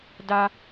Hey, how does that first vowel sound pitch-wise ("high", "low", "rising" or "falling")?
high